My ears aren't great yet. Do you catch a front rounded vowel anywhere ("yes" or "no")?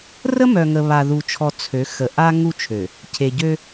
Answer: yes